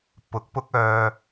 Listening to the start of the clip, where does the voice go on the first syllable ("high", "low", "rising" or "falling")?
rising